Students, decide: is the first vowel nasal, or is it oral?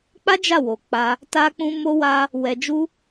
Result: oral